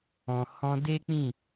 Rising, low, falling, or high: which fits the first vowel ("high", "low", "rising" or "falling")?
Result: low